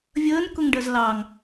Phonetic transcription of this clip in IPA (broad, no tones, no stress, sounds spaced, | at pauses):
vʲ əː n k ʊ ŋ ɖ ɜ z l ɑ ŋ